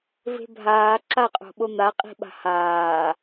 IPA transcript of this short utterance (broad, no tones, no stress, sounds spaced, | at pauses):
v e̤ bʱ aː ǁ a qʼ o̤ ɓ o n̪ a qʼ i̤ ɓ a̤ h aː